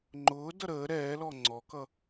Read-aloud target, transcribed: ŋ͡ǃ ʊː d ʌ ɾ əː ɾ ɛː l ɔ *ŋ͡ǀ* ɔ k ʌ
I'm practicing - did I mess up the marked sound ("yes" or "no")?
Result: no